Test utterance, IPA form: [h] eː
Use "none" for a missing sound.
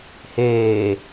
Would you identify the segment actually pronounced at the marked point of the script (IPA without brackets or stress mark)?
h